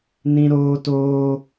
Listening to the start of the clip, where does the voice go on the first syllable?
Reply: high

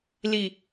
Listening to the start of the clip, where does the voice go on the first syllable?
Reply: low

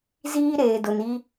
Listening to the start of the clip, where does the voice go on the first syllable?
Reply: high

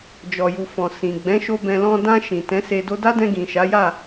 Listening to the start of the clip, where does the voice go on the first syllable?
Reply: low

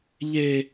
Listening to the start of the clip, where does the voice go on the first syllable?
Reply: high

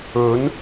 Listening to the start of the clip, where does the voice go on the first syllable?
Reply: rising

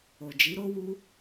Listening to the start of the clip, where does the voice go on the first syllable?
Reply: low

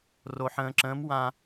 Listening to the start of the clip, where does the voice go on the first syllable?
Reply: low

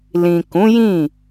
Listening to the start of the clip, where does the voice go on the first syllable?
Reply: low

